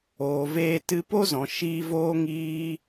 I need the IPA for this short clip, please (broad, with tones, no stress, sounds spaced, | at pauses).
oː˨ v eː˧ t ɨ˧ p o˦ z ɔ̃˨ ʃ iː˧ v oː˦ ŋ iː˦